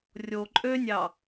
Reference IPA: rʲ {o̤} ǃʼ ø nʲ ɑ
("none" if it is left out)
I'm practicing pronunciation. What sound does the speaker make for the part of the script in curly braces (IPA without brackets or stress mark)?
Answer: o